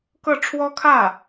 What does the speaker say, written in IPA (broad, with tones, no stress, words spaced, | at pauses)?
kɤ˥˩ ʈ͡ʂʰwɔ˥kʰä˥˩